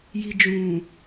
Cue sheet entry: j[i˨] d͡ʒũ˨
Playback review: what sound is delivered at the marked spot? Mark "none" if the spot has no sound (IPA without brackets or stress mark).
i˨